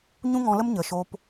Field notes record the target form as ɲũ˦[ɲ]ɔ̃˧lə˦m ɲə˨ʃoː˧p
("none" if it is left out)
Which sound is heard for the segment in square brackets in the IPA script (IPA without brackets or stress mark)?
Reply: ŋ